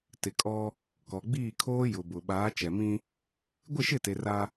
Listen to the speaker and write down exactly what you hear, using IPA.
tɪ˨kʼɔ˦ | kɔ˨ɡ͡biː˦˨kʰoː˦ jʊ˨bʊ˨ ɓaː˨˦t͡ʃɛ˨mĩ˦ | ɡʷɪ˦˨ʃɪ˦˨te˨ ra˦

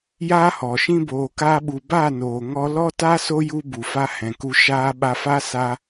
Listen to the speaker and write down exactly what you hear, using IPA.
jaː˦hɔ˨ʃĩ˦ boː˨kaː˧ɓu˨ ba˦˨ noː˨ ŋɔ˧ lɔ˦ta˦ so˦ju˧ bu˨fa˧ hɛ̃˨ku˧ ʃaː˧ ɓa˧fa˦ sa˧

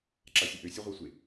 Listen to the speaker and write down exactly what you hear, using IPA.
ǁasʲɨʔø sʲaʁʷasʷe

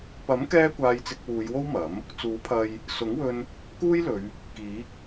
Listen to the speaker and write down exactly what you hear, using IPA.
pɐ˨˥mkɛː˧ kʷaː˧jt͡sɪ˧k̚ wuː˨˧jwo˥w mɐ˨˥m | t͡suː˨˥pʰɐ˧j | sʊ˨˥ŋwɵ˧n | kuː˥jlɵ˨˧ɥ | kiː˨˥k̚

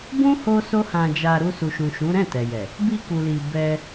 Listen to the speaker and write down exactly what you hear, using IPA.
bũ˦ ho˦so˦hã˧d͡ʒa˧ ɾu˧su˨ʃũ˨ʃũ˨˦ ɾɛ̃˦˨tɛ˨jɛ˨ | bi˧ku˨li˨ bɛ˧

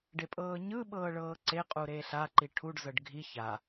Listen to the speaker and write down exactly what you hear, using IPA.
ɖepʼɤːɲɯ ɓɤːɭɤːǀe qʼuɾeɬa ǃiʈʰuɖ zɤɖɡʱi ça

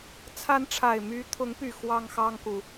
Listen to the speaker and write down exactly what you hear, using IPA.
t͡sʰa˨˦n ʈ͡ʂʰa˨˩ɪ̯my˨˦t̪ʰʊ˨˦ŋpy˨˩ xwɑ˦ŋxɑ˦ŋku˨

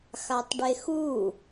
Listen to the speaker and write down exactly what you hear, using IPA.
xatˤɖexu

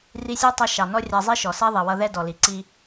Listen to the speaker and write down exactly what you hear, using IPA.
ri˧sʲɑ˥tˤʌ˧ ʃɑ˩nɔ˥rʲɑ˧ zˤi˥ʃɔ˩ sɛ˥ðˤi˩wʌ˧ðɛ˥ dɔ˩li˩ǀi˧

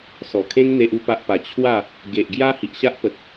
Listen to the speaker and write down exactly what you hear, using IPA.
sɔ˨˩kʰẽ˦ŋ n̪e˦ʔu˦pa˦ʔpa˧ t͡ɕʰwa˥˧ | ɡe˨ʔɡja˦ hi˨ʔɕa˦ʔpə˨t̚

